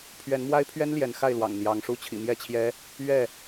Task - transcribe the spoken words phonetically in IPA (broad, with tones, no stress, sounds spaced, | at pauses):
pʰ ɥ ɛ˨˦ n m w a˦ ɪ̯ pʰ ɥ ɛ˦ n l j ɛ˨˦ n x a˥˨ ɪ̯ l w ɑ̰˨˩ ŋ n̪ j ɑ˨˦ ŋ ʂ u˥˨ t͡ɕʰ ḭ˨˩ m j ɛ˥˨ t͡ɕʰ j ɛ˦ | ɥ ɛ˥˨